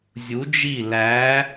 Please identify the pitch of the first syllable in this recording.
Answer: rising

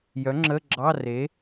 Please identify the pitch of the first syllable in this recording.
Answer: rising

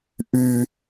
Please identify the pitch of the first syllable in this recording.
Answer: high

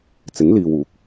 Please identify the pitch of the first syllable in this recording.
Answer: rising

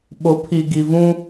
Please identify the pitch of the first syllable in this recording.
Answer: rising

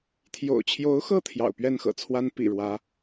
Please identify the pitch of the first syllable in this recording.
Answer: low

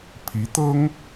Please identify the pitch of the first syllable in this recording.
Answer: rising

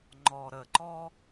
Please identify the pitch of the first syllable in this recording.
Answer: low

